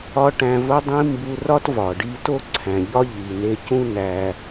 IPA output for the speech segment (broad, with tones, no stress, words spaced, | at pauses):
ɒ˥ ʈæ̃˧vo˥dˤĩ˥ mbu˧rɒ˥t vɒ˩ɖi˥ to˥ǀʰæ̃˩ʎɒ˥ ʎi˩ne˧cũ˥ næ˧